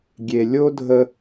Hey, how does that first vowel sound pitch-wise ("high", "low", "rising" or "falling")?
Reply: low